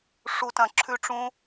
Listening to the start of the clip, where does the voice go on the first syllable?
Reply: high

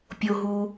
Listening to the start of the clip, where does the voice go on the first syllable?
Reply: low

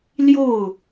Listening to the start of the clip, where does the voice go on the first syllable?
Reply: falling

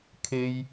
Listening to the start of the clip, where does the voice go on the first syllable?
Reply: high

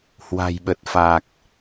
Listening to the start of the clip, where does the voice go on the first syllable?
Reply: low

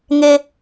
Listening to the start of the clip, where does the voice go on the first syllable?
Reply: low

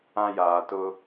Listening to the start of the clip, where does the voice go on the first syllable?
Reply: high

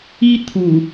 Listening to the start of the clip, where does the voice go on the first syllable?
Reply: high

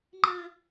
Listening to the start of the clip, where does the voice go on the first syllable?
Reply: high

